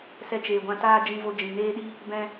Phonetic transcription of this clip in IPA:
s ɛ˧ t͡ʃ eː˨ ɡʷ ã˧ t aː˦ d͡ʒ ĩ˧ v o˧ d͡ʒ ĩ˨ n eː˦ ɗ i˦ | b ɛ̃˧

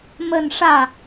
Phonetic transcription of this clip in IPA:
m ə˥˧ n ʂ ä˥˩

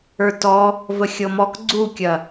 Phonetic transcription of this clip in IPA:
ə˞ t ɔ | v ə xʲ ɤ m ɔ k ɡ͡ǀ u kʲ ɐ

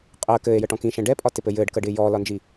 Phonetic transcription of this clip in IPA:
qʼ əː k ɘː e̯ j ə ʈ ɔ̃ k ĩ ʃ ɛ̃ ɖ ɛ pʼ ɒ t ɪ p ɘ j ɘː ɖ k əː ɖ ɪː j ɔː l ɒ n d͡ʒ i

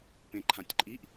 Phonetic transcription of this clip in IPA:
p ẽ ǃʰ ã tʲ ǃʼ i ʔ

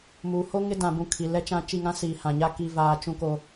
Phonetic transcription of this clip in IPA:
m uː˨ h o˦ ŋ ɪ˦ d ã˨ b ũ˦˨ kʰ i˨ l ɛ˦ t͡ʃ ã˦ t͡ʃ i˦˨ ŋ ã˦ s iː˨ h ã˨ ɲ a˦ k i˦ v aː˦ t͡ʃ ũ˦ k o˦

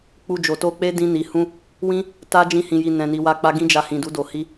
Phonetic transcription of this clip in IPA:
k͡p u˧ d͡ʒ o˨ t o˧ k͡p e˦ d ĩ˧ n i˨ h ũ˧ | w ĩ˦ | t a˦ d͡ʒ ĩ˦ h ĩ˧ j i˧ n ɛ̃˧ n i˧ w a˦ k͡p a˦ ɡ ĩ˦ d͡ʒ a˧ h ĩ˨ d u˨˦ d o˧ h i˦

